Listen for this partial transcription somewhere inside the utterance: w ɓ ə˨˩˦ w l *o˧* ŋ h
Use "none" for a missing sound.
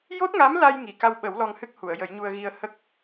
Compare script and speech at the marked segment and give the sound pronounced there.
ɔ˧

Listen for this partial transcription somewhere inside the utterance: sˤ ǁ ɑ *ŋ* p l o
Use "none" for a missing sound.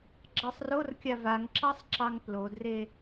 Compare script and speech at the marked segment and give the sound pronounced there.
ŋ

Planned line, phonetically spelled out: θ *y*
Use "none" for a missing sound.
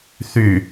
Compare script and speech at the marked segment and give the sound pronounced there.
y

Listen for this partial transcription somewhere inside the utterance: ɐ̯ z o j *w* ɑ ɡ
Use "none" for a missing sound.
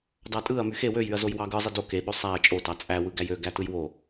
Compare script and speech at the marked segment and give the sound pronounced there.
w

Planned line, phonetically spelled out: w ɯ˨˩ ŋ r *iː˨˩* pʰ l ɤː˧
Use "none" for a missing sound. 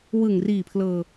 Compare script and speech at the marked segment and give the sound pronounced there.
iː˨˩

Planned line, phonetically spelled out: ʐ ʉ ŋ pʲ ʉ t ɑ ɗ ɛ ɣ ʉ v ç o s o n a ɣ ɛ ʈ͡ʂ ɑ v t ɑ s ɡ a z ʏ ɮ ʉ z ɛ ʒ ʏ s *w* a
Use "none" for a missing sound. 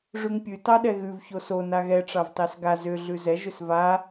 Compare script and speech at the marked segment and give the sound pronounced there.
v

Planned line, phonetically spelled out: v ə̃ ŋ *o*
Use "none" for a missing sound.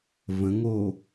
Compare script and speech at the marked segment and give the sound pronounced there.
o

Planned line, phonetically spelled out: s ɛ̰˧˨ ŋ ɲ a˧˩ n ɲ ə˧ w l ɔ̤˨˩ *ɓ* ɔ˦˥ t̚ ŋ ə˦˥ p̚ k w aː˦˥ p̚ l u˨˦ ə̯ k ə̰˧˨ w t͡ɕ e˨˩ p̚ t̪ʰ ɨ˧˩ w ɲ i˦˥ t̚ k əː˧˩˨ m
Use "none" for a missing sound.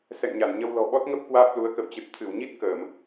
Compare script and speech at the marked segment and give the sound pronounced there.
ɓ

